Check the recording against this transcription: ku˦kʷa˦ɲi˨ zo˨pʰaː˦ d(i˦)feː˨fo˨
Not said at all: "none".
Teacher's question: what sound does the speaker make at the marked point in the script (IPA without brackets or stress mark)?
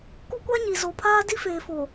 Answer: i˦